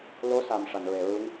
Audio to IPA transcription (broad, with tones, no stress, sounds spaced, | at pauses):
l o˧˥ s a˨˩ m ʂ a˨˩˨ n ɹ e˨˩˨ ɹ u˧˥ ŋ